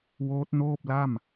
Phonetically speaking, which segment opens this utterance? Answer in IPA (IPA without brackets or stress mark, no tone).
w